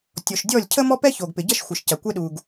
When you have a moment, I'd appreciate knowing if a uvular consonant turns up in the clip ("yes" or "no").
no